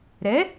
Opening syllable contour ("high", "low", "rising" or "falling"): rising